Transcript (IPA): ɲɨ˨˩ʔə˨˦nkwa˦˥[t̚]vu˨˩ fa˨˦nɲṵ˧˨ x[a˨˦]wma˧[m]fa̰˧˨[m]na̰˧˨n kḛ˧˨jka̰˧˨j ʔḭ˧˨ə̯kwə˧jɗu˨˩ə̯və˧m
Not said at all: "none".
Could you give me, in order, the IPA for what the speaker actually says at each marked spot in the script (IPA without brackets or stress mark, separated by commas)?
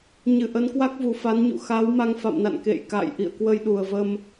k̚, a˨˦, ŋ, m